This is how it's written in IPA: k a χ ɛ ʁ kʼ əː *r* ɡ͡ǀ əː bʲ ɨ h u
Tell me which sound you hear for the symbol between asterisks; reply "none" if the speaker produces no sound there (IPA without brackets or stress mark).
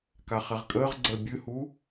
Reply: ʁ